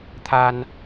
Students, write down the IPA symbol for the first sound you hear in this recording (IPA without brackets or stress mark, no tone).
t̪ʰ